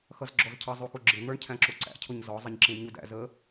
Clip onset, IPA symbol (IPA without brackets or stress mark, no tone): x